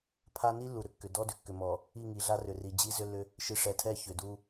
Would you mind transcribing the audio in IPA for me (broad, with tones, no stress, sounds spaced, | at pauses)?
pʰ a˦ n i˦ lː u˨ ɾ ʏ˦ kː ʏ˨ d ɔ˦ d ʏ˨ kː ʏ˨ m ɔ˨ | i˦˨ ŋ i˨ ɮ a˦ r ʏ˨ r i˨ d͡ʑ i˦ z ʏ˦ lː ʏ˦ | ʃ i˨ ʂ ɛ˨ tʰ ɛ˦˨ ç ʏ˨ d u˦